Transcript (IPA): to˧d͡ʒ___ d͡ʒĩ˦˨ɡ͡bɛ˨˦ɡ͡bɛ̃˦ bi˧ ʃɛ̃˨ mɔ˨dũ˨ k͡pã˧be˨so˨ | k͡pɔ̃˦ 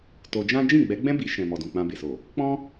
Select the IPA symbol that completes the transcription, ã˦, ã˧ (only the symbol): ã˦